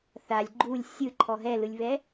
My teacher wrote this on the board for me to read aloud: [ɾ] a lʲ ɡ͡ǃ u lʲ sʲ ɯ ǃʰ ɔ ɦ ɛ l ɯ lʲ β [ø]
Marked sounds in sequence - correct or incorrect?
incorrect, incorrect

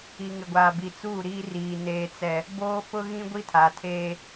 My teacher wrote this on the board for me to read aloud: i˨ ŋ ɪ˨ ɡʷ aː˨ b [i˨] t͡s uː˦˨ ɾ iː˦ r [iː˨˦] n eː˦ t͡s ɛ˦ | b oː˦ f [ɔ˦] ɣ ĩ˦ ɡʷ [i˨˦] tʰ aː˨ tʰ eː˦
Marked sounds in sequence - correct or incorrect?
correct, incorrect, incorrect, incorrect

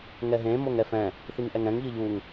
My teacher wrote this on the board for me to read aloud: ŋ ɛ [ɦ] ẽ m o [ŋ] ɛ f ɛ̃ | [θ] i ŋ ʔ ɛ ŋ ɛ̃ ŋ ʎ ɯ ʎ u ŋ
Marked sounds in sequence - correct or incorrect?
correct, correct, correct

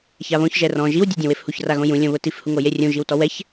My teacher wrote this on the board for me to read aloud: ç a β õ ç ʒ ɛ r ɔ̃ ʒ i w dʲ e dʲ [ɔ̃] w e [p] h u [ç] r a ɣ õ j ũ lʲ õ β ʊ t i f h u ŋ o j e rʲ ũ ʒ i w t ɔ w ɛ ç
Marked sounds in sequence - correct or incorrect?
incorrect, incorrect, correct

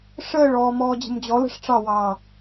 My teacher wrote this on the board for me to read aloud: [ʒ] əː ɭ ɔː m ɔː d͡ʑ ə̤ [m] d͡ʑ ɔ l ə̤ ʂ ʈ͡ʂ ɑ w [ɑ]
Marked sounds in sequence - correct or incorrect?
incorrect, correct, incorrect

